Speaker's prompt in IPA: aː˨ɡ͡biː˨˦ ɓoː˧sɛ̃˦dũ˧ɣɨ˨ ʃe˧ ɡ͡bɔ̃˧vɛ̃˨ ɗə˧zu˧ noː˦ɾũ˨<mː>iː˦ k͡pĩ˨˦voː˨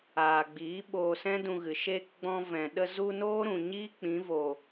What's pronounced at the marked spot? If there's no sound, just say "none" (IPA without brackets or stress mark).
ɲ